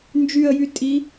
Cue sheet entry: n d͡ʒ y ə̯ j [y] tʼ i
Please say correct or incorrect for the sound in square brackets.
correct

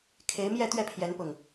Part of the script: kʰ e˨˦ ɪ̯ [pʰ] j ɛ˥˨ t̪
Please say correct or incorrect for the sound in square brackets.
incorrect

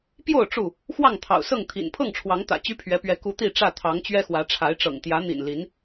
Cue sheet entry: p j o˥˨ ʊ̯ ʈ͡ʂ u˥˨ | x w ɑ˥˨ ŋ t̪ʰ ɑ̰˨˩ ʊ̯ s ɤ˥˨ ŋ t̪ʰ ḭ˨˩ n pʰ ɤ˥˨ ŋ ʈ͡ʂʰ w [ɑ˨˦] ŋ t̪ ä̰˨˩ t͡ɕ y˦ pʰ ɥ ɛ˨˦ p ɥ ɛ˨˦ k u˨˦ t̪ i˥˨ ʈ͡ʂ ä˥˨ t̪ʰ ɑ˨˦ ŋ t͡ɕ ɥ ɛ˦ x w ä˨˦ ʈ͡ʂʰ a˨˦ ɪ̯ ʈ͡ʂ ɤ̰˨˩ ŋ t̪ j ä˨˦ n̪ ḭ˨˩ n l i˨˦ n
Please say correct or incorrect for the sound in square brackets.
correct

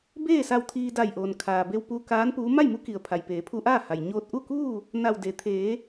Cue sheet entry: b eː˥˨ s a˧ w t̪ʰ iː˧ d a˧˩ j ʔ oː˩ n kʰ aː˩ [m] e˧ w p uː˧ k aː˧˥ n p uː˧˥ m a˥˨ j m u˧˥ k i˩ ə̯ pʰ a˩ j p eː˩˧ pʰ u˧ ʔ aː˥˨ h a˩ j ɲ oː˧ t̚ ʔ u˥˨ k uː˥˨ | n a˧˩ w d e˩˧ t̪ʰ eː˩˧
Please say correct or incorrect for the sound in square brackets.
incorrect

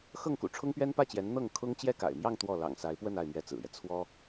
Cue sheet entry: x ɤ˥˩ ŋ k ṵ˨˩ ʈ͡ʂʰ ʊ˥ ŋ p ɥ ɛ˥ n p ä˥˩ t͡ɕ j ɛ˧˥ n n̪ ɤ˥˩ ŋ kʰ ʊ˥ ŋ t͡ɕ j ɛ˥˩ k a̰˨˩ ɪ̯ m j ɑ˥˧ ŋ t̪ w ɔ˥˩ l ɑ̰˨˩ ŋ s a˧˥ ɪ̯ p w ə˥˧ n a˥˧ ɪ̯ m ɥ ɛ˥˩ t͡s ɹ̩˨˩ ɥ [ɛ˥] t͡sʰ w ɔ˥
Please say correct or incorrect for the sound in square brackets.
incorrect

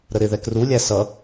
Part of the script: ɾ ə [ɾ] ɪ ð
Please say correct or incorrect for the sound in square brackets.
correct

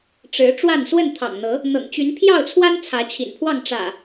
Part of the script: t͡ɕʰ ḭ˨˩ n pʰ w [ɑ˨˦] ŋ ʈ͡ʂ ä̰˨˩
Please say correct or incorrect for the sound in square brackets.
incorrect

